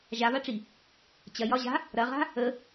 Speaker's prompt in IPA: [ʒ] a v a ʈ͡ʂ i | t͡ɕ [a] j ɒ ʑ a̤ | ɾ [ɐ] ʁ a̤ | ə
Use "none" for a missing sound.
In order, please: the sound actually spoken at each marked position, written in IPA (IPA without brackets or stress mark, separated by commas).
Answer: ʒ, ɐ, ɐ